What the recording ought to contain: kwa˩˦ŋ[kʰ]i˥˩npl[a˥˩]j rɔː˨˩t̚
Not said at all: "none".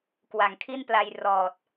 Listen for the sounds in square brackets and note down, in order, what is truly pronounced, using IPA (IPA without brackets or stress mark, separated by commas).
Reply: kʰ, a˧